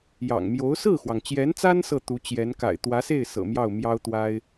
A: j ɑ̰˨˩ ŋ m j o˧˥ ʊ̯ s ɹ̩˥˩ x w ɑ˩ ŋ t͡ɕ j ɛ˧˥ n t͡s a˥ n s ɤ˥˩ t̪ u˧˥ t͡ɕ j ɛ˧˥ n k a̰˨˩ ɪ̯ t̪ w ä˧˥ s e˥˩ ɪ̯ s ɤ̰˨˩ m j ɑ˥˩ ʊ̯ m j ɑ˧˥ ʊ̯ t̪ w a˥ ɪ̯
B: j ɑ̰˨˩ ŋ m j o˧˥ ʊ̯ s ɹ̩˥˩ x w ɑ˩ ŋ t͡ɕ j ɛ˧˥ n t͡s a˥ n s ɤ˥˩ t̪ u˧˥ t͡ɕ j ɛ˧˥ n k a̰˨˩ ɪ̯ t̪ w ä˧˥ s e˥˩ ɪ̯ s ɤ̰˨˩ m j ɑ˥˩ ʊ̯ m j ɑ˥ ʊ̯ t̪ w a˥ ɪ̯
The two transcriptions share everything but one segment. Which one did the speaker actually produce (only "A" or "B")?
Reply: B